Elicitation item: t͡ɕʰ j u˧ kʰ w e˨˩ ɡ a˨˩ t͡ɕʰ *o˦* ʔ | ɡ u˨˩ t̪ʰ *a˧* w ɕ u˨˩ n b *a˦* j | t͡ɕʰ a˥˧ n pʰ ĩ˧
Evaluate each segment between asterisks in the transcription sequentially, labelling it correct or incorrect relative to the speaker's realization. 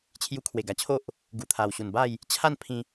correct, incorrect: a˨˩, incorrect: a˥˧

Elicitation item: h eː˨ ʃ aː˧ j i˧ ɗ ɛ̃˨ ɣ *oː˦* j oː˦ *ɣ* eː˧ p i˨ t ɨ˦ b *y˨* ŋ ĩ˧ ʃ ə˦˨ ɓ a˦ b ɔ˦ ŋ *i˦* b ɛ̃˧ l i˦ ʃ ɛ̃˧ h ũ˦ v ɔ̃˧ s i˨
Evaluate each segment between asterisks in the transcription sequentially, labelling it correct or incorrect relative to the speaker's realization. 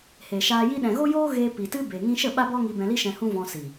incorrect: o˦, correct, incorrect: e˨, incorrect: i˧

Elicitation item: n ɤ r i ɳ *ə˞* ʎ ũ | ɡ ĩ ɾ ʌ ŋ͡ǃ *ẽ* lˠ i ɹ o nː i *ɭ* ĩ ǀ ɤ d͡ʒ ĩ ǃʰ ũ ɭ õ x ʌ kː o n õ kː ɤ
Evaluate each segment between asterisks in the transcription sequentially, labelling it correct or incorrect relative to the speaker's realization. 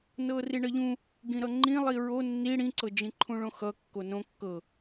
incorrect: ʌ, incorrect: ĩ, incorrect: ɽ

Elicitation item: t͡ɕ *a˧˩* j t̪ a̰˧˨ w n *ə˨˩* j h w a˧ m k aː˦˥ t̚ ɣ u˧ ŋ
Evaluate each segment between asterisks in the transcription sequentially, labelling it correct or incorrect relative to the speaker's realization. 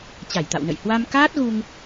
correct, incorrect: ə̰˧˨

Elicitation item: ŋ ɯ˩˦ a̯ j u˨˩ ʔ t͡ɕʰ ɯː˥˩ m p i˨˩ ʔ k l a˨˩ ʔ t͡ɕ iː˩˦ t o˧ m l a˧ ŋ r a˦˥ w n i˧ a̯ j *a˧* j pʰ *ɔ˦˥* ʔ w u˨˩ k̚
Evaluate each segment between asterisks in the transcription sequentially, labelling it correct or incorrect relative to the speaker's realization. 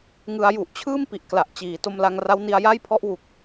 incorrect: a˥˩, correct

